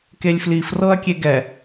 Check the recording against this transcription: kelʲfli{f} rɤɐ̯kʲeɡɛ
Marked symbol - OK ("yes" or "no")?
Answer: yes